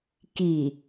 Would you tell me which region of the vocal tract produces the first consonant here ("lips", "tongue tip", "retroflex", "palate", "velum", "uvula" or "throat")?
velum